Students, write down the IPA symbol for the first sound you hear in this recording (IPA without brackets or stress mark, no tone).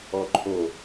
ɔ